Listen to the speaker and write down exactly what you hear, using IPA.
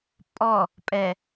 pʼ ɔ | pʼ ɛ

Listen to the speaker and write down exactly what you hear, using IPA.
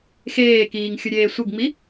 x eː k iː ŋ xʲ ʊ ɾʲ eː sʷ ɪ ɡ ŋ͡m i

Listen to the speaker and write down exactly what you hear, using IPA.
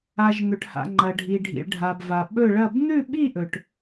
a˨ ʒ n̪ ɵ˨ ʈ h a̰˨ ŋ͡ǃ ɐ˨ ɖʱ i˨ ɖʱ ḭ˨ ɭ ɖʱ a˨ b v a˨ ɓ ɵ˥˧ ɭ ɐ˥˧ b n̪ ʉ˥˧ ɓ i˥˧ ʔ ɵ˨ ʈ

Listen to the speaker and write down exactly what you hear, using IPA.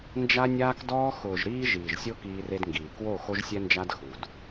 n d͡ʒ a˦ nʲ aː˦ k d ɔː˦ x ʊː˨ ʒ ɾ iː˦ ʒ iː˨ ʒ sʲ o˦ k iː˦ r e˦ d ŋ ɡ iː˨ k w o˦˨ x o˦ ʒ sʲ ɛ˦ n d͡ʒ a˦ d x u˨ d

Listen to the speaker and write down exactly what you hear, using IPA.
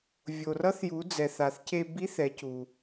vʲ o˩ r ʌ˧˥ θ j u˩˧ d͡z ɛ˩ θ a˩ θ c e˧ b i˧˥ θ ɛ˩˧ c u˩

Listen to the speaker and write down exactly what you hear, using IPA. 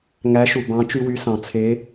ŋ æ˧˥ ʃ u˨ b ɑ̃˧˥ t͡ʃ y˥ w y˧˥ s ɑ̃˨ t͡sʰ e˧˥

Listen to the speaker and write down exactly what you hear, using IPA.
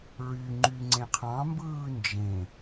ɹ y ŋ͡ǃ y ŋ͡ǀ ẽ qʰ ɑ̃ m b ɯː n d͡ʒ ẽ

